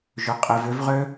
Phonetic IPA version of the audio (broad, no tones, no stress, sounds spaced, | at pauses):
ʒ ʏ qʼ ɪ v ʏ v ʁ ø